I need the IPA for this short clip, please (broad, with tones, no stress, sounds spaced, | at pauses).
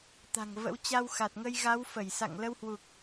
t̪ a̤˨˩ ŋ v ə̰˧˥ w t͡ɕ a˧ w x a˨˩ t̚ ŋ ə˧ j ɣ a˨˦ w f ə˧˩ j s a̰˧˨ ŋ l ə˧ w h w u˨˩ k̚